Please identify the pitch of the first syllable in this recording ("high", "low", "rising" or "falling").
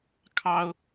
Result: high